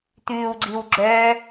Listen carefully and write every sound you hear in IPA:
t̪ʉːwɡ͡ǀiw ɡ͡ǁœ

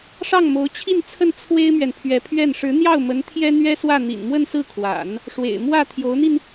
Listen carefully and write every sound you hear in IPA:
ʂɑ˥˩ŋmo˧˥ʊ̯t͡ɕʰi˥˧nt͡sʰə˥˩n t͡sʰwe˥ɪ̯mɥɛ˨npʰɥɛ˧˥pʰɥɛ˥˩n ʂɻ̩˧˥n̪jɑ˥˩ʊ̯mə˧˥n t̪ʰjɛ˥n̪ɥɛ˥swä˥˩ n̪ḭ˨˩nmwə˥˧nsɹ̩˥˩kʰwa̰˨˩˦n | ʂwḛ˨˩ɪ̯ mwä˥˩ t̪ʰjo˧˥ʊ̯n̪i˧n

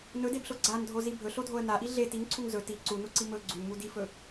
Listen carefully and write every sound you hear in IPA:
nɵdebɬo ɡ͡ǀandʱozi bʱɵɬodʱoə̯ naʔi ɮe tiŋǀʰuŋ zɵ ti ǀunuǀi mɵ ɡ͡ǀunmu difɵ

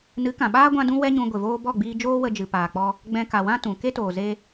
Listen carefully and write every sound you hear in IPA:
nɨ˨˦kã˨ɓaː˦ ɡʷã˦dũ˦wɛ˦ɲũ˧ ɡʷe˨voː˧bɔ˦˨ɡ͡biː˧ d͡ʒoː˦wə˧d͡ʒɨ˨ paː˨k͡pɔ˧ | ɡ͡bɛ̃˧ka˨wã˦ tũ˨ ke˦toː˨ze˧

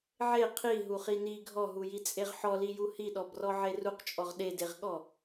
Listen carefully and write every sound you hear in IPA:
ʕe qʰi ɦuχini ɡʱɔɦujit͡sʼeʁ ħɔliju hiɗɔbrɔ ʕeruqt͡ʃʼɔʁ ɗedeʁɠɔ

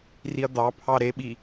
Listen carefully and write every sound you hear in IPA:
riɐ̯d̪ɑpʰɑ ɾeɓi

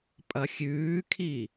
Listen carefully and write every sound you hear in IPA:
pʼɐxʲʉːkʰi

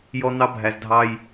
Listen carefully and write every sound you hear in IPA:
jɔ˦n̪ɑ˦ bʱæ˨zdʱɑ˦j

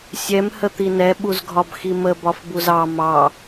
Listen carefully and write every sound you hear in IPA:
sʲɛm hət̪inɛ ɓuzɡʱɒbximə bɒfbuzɑ mɑ

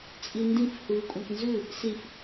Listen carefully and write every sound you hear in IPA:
t͡sʼindĩf hʉːkʷʼãknzʉ | sif

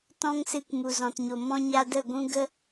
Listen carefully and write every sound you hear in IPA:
tɔ̃˦ŋsɨ˧k mu˨zɔ̃˨tɲo˨ mɔ̃˧ɲa˧ də˦˨ɡʷũ˦ ɡə˦

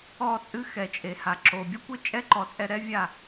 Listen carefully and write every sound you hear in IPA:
ɔ˦˨t͡sʼɨ˦ xɛ˨t͡ʃʼe˨ha˨ ǁo˨ bʲu˦kʷɘ˦t͡ʃʼɛ˦ ǃɔ˨˦t͡sʼɛ˧ɾɛ˦ vʲa˦˨

